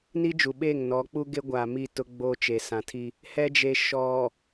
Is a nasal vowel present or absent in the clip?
present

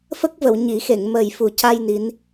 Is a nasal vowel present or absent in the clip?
absent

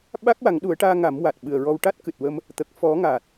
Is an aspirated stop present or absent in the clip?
absent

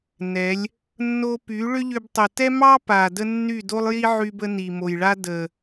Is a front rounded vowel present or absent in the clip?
present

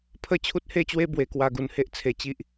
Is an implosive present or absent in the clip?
absent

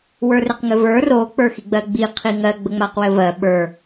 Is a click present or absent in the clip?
absent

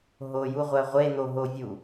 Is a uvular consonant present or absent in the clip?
present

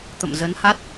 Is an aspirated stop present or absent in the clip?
absent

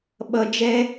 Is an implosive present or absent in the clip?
present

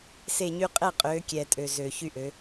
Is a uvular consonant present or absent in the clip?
present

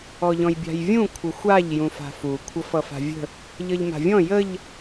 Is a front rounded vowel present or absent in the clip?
absent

